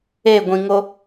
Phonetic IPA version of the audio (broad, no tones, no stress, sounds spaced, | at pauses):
e ɡʷ ĩ ŋ o